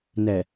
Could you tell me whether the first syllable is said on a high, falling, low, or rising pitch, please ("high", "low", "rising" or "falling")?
low